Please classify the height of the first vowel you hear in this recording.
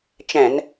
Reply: mid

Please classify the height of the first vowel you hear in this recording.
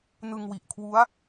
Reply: high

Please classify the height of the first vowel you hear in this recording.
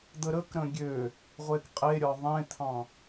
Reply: mid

